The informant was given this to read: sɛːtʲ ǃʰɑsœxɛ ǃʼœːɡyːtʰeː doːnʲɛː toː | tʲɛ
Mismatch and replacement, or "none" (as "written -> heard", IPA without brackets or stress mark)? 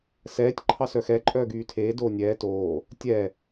none